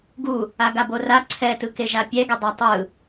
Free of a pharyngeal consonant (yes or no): yes